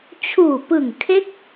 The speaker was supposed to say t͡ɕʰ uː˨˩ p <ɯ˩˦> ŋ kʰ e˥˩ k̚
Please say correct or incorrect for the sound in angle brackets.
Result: incorrect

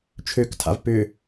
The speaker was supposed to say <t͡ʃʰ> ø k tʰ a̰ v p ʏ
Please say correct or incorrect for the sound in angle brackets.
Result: correct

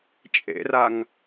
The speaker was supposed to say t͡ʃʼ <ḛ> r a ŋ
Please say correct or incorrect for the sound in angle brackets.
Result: correct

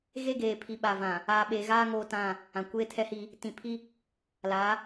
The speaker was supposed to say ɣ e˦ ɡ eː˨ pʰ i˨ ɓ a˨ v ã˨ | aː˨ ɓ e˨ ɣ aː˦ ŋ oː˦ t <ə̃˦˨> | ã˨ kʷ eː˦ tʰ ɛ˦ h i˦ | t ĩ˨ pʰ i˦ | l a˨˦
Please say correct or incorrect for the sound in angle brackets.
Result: incorrect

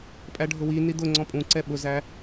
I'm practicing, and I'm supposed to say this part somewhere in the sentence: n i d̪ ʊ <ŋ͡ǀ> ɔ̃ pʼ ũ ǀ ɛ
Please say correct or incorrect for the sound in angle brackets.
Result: correct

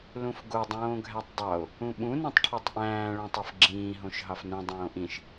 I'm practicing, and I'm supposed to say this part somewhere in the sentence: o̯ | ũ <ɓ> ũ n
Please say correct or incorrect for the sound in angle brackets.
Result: correct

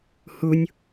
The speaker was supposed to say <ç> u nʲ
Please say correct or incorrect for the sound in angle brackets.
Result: incorrect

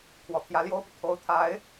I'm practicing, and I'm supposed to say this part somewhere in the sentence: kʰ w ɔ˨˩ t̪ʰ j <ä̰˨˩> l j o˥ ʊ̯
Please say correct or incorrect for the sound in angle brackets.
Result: incorrect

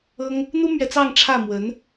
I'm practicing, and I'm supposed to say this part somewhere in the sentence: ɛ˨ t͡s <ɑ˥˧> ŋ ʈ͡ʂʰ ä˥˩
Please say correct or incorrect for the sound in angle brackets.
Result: correct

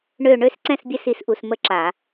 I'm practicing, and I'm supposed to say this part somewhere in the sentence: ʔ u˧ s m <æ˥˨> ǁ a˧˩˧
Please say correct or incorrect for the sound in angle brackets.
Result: incorrect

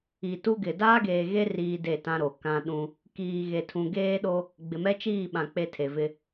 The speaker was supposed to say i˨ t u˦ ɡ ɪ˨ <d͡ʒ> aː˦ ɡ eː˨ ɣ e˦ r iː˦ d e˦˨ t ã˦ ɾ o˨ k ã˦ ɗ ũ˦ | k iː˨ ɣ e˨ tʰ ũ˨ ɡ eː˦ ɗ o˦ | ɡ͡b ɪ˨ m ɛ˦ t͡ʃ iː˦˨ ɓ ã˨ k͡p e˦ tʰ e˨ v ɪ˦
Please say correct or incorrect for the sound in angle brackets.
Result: incorrect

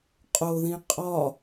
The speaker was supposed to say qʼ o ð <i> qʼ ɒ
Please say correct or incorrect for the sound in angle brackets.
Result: incorrect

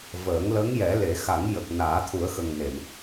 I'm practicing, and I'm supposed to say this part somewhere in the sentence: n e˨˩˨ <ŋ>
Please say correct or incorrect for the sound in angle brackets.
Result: incorrect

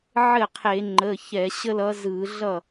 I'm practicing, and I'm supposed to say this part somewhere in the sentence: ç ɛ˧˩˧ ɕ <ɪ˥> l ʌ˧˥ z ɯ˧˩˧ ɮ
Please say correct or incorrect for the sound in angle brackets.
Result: incorrect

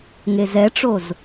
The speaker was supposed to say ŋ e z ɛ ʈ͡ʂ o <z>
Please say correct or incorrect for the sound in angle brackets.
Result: correct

